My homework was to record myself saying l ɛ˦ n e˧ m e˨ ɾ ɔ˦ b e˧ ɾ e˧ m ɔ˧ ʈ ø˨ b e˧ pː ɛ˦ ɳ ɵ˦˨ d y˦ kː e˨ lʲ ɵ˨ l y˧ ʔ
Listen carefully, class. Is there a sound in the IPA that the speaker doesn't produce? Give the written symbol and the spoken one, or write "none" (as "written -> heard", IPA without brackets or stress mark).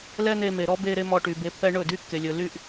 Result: ø˨ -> y˨